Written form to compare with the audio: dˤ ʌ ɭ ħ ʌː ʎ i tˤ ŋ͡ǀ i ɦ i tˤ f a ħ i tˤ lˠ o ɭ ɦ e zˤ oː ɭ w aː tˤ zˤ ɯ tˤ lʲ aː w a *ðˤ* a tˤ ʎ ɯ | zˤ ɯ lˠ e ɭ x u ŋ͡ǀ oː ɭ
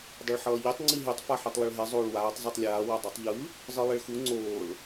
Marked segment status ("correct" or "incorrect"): incorrect